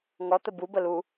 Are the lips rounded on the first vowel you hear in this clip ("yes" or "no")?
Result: yes